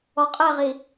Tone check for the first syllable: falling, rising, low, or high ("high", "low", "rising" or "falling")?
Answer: low